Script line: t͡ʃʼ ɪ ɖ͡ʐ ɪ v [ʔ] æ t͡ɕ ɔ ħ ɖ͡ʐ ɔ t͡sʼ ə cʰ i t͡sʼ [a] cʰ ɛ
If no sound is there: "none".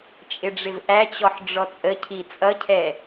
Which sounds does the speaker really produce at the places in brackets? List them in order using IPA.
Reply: ʔ, ʌ

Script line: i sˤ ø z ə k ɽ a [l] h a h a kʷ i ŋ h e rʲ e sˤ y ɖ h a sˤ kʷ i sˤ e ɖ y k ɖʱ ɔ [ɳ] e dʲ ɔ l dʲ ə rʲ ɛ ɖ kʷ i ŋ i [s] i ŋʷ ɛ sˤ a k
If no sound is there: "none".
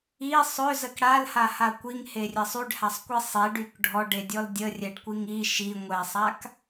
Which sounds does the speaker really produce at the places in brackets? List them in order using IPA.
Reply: l, ɖ, ʃ

